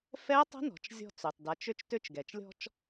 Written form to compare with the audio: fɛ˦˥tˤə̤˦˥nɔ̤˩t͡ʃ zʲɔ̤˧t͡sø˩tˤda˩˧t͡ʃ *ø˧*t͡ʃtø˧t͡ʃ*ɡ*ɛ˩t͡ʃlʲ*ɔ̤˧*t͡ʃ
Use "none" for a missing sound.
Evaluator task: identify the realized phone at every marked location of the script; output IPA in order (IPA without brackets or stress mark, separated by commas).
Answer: ø˧, ɡ, ɔ̤˧